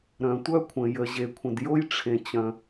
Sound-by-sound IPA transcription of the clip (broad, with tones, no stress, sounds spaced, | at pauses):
ɾ œ̃˨ tʷ œ˥ kʷʰ ə̃˨ j ə˨ ʑ e˨ kʷʰ ə̃˨ d j o˥ j ʈ͡ʂʰ ẽ˨ t͡ɕ œ̃˨